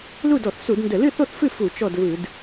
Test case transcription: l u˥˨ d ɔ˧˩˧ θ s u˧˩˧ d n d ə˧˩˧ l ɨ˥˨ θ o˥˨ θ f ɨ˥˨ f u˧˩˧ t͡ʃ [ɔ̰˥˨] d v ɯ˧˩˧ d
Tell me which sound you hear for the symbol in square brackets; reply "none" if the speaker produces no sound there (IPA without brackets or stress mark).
ɔ˥˨